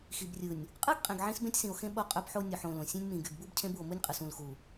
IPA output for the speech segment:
x i˨ b rʲ ɯ˨ nʲ | qʼ ɯ˦ ɡ qʼ ẽ˨ ɡ ʕ ĩ˦ s b ẽ˦ tʲ s ĩ˨ o̯ x ẽ˦ ɓ o˦ qʼ ø˦ b ħ o˦ nʲ o˨ ħ õ˨ l õ˨ sʲ ẽ˦ nʲ m ĩ˨ ɡ y˨ ɡ b u˦ b cʰ ẽ˦ b u˨ o̯ m u˦ nʲ qʼ ɯ˨ s ũ˨ l x u˨

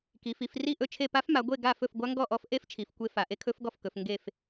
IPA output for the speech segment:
k i˩˧ f i˩˧ f r i˥˨ ʔ ɵ˥˨ t͡ʃʰ e˥˨ p a˦˥ f m a˩˧ ɡʷ e˥˨ ɡ a˥˨ f ɵ˥˨ f ɡʷ a˦˥ ŋ ɡ ɔ˥˨ ʔ ɔ˦˥ f ʔ e˦˥ f t͡ʃʰ i˩˧ f kʷ e˦˥ f a˩˧ ʔ e˦˥ kʰ ɵ˦˥ f ɡ ɔ˥˨ f k ɵ˩˧ f ŋ ɡ e˥˨ f

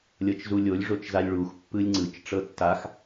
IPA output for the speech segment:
lʲ ɤ t͡ʃ z u lʲ o lʲ ʐ o t͡ʃ z a lʲ ɭ u x pː ɯ lʲ ŋ͡ǀ ɯ t͡ʃ ʈ͡ʂ ɤ tː a x

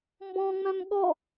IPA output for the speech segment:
m b ɔ̃ ŋ͡m œ̃ m ɠ ɔ

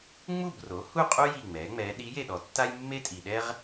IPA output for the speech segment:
ŋ͡m u˥˨ b r o˩˥ h u˥˨ qʼ u˥ j i˥˨ ŋ͡m ɛ˩˥ ŋ͡m ɛ˧˥ ɗ i˧˥ j e˥˨ ɗ ɔ˨ tː a˥ j mː e˥ tʼ i˨ ɗ ɛ˥ ʁ

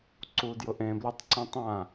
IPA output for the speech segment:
ǀ u d j ʊ ʔ ẽ b l ɪ tˤ ǀ ĩ tˤ ã

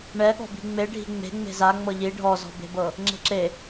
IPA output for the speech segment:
ɳ ɛ ɠ ɔ̤ b i̤ ŋ͡m e ɖʱ i̤ ŋ͡m e̤ ŋ͡m e̤ z a ŋ͡m ɤ ʎ i ɖʱ ɔ z ɔ̤ b e̤ b ɤ | ŋ͡ǁ e̤ ǁ e

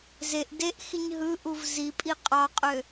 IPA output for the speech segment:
z e ʔ d e ʔ x i ɲ ɦ ɯ ʔ u v z i pʼ i qʼ ɑ qʼ ø

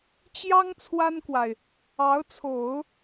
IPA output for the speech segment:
t͡ɕ j ɑ˥ ŋ t͡sʰ w a˥ n k w a˨ ɪ̯ | ɑ˧˥ ʊ̯ t͡sʰ o˨˩˦ ʊ̯

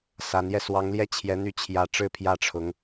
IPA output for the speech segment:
s a˧˥ n j ɛ˥˩ s w ɑ˧˥ ŋ l j ɛ˥ t͡ɕʰ j ɛ˧˥ n̪ y˥˩ t͡ɕʰ j ä˧˥ ʈ͡ʂ ɻ̩˥˧ pʰ j ä˥˩ ʈ͡ʂʰ ʊ˧˥ ŋ

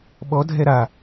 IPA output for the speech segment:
ɓ ɔ dʱ ɛ ɾ a

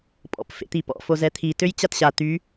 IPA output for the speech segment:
pʼ ɔ̰ p f ḛ t̪ i p ɔ̰ f o z ɛ t̪ʰ i t ø j t͡ɕ a t ɕ a t̪ y

